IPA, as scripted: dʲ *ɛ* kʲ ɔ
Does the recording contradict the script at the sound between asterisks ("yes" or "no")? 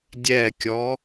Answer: no